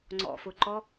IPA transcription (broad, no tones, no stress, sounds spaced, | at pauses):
ŋ͡ǀ ɔ̰ f ʊ ǃ ɔ